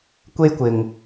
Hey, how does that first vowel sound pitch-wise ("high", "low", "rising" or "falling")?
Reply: high